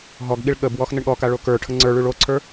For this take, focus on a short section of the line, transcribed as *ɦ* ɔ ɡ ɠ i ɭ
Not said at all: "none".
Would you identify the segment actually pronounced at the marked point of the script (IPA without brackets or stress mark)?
ɦ